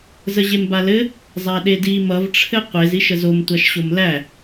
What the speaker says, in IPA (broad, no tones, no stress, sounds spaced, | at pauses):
z ə ʑ e m b a l ɘ | zˤ æ ɗ e d i m ʌ v ʈ͡ʂʰ ɘ qʷ e z i ʃ ə z o m tʷ a ʃ ɕ o m l æ